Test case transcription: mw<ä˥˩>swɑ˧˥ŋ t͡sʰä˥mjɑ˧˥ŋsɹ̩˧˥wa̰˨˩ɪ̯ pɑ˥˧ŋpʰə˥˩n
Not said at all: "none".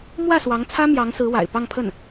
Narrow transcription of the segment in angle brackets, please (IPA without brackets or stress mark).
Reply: ä˥˩